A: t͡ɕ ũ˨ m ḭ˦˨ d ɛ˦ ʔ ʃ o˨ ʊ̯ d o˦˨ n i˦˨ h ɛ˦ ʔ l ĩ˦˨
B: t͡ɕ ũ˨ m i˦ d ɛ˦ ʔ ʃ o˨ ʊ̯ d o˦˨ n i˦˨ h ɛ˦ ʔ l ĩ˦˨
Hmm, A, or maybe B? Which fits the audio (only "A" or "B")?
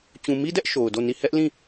B